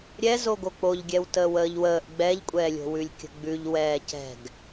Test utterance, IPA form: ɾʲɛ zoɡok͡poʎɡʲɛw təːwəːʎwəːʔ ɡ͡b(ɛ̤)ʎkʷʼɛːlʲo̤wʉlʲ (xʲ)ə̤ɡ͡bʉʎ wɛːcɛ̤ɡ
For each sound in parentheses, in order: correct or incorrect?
incorrect, incorrect

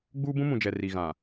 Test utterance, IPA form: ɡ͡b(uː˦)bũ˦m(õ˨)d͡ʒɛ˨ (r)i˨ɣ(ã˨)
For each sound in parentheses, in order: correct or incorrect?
correct, incorrect, correct, correct

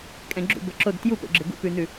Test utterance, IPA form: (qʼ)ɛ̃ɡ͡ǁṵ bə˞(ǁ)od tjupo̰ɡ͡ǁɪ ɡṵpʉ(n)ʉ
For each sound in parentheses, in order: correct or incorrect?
incorrect, correct, correct

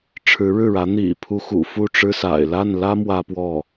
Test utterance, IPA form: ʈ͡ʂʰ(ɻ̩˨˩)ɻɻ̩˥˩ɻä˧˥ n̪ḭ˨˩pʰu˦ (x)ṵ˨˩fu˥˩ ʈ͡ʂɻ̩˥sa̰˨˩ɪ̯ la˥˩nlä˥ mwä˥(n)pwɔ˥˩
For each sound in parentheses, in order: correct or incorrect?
incorrect, correct, incorrect

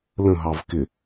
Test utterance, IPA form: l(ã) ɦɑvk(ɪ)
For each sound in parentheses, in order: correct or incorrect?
incorrect, correct

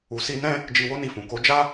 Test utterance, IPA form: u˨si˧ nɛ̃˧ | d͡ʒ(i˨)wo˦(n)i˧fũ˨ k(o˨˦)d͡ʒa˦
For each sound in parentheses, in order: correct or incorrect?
incorrect, correct, correct

